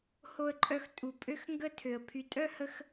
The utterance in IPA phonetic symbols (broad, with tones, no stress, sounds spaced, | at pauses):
h o˧ ə̯ ǃʼ œ˧ x tʼ u˨ pʼ ø˦ x ŋ ɡ ə˦ tʰ ø˨ ə̯ pʰ y˧ tʼ œ˦ h ə˧ x